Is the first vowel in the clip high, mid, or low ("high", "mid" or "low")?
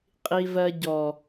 high